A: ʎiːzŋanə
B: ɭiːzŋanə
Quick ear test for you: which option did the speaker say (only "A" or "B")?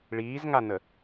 B